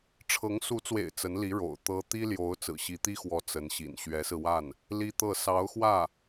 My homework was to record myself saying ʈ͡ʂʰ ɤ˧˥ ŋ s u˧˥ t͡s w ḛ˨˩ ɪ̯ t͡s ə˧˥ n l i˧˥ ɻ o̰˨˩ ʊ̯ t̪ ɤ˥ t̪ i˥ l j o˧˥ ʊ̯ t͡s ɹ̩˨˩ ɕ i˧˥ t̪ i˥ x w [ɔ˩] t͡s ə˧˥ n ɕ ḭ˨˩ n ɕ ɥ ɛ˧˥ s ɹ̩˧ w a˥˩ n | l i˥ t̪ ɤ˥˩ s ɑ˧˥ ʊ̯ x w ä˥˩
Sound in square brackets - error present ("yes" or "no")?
yes